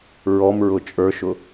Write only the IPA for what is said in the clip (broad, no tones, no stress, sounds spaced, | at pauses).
ɹ ɔ m ɹ ʊ t͡ʃʼ ə˞ ʃ ʊ